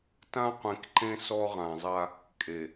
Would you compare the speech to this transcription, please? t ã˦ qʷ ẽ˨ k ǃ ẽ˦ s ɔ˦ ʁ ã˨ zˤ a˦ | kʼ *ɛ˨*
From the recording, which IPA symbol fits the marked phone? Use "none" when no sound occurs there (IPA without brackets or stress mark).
e˨